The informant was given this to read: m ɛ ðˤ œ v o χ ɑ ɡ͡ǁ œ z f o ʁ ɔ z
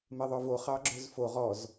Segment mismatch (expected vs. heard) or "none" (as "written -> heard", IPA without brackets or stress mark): none